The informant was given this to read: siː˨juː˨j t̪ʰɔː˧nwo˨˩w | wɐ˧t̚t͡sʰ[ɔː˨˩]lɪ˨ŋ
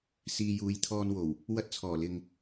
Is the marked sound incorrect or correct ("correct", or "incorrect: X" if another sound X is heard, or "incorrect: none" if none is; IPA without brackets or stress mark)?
correct